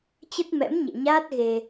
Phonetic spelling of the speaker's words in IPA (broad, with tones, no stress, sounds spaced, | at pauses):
t͡ɕ ə˦˥ t̚ m ɛ̰˧˥ m ɲ ɛ̰˧˨ ɲ aː˦˥ t̚ ɣ e˧